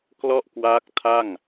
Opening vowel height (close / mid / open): mid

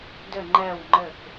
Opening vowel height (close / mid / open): mid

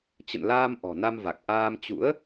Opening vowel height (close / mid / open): mid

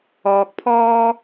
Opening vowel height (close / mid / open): mid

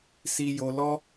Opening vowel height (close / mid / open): close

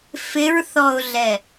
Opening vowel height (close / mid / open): close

